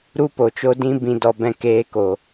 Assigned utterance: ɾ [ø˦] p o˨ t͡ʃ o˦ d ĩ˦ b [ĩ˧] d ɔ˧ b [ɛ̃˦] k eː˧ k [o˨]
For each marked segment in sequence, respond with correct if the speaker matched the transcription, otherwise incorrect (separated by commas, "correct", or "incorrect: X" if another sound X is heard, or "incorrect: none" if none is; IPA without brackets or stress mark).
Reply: incorrect: u˦, correct, incorrect: ɛ̃˧, correct